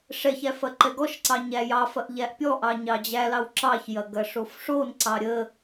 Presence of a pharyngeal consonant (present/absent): absent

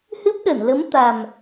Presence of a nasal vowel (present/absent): absent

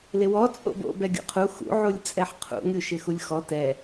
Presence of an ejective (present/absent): present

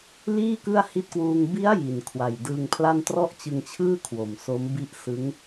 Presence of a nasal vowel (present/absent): absent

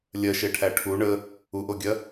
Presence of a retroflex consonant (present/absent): present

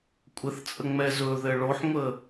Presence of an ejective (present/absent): present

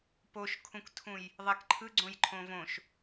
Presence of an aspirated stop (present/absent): present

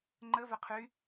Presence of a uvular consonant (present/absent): present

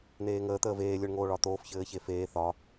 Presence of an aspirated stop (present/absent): absent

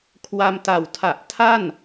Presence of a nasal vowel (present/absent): absent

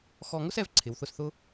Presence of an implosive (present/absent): absent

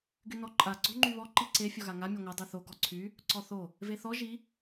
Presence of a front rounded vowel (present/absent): present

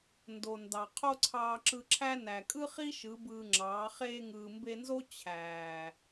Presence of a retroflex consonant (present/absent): absent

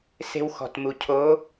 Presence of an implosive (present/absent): absent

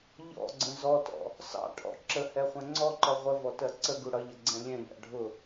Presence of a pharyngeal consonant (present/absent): absent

